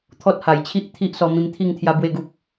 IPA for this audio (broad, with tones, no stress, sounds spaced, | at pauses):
t̪ʰ ɔ˦ t̚ h a˨˩ j t͡ɕʰ i˦ ʔ t̪ʰ i˦ ʔ s ɔ˧ m ĩ˧ m t̪ʰ i˥˧ ŋ t̪ʰ j a˧ b w e˥˧ ɡ u˦ p̚